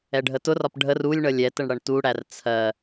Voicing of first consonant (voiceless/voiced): voiced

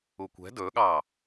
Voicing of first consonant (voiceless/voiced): voiceless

